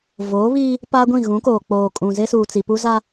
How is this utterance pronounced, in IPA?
v oː˨˦ β iː˦ | p aː˦ ɡʷ ĩ˦˨ ɣ ũ˨˦ k oː˨ k͡p oː˨ kʼ ũ˨ z e˦ s uː˨ t͡s i˨ p u˦ z a˦

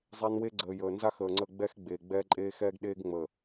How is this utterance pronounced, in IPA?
zˤ e˦ n w e˦ ɡ͡ǀ əː˨ j əː˨ n z a˦ x əː˨ ŋ͡ǀ ə˦˨ ɡ͡b ɛ˦ x ɡ͡b eː˨ ɡ͡b ɛː˦ ǃʼ eː˦ x ɛː˦ ɡ ɗ eː˦ ɡ ŋ͡m əː˨

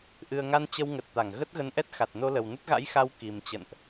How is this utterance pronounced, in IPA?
ʔ ɨ˨˩ ə̯ ŋ a˧ n t͡ɕ ə˧ w ŋ ə˨˩ t̚ t̪ a˧˩ ŋ ɣ ə˦˥ t̚ ɣ ə˨˦ n ʔ ɛ˦˥ t̚ x a˨˩ t̚ n o˧ l ə˨˩ w n ə˦˥ t̚ ɣ a̰˧˥ j x a˧ w k i˨˩ m t͡ɕ ə̰˧˨ n ʔ

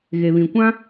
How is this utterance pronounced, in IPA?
ɣ e˨ β ĩ˨ kʷ ã˦

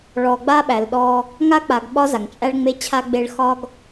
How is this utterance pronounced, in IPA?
ɭ ɔ˨ ɡ͡b a˦ ɓ æ˨ l ɗ ɔ˦ | ŋ a˦ k͡p a˨ ɡ ɓ ɒ˦ z a˨ ŋ t͡ʃʼ æ˦ ɭ ŋ͡m e˦ t͡ɕʰ a˦ ɡ͡b e˦ ɭ x ɒ˦ ɡ

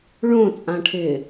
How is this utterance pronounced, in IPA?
ɭ õ t͡sʼ ã ʈʰ ɪː

